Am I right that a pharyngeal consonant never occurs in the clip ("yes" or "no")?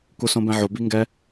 no